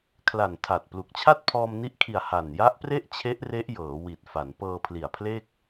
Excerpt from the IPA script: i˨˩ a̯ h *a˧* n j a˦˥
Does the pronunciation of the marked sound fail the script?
yes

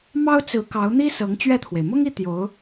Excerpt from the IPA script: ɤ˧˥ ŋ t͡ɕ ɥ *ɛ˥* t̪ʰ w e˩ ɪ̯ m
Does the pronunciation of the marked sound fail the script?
yes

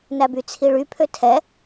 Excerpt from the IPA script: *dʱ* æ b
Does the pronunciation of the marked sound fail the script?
yes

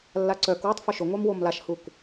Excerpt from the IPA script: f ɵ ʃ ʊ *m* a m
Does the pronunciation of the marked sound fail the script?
yes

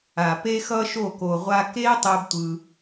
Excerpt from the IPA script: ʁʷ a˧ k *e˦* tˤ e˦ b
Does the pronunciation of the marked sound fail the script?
no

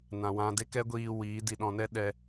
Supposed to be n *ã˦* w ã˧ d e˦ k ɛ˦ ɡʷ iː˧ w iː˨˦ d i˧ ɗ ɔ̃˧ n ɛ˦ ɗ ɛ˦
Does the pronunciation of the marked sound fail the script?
yes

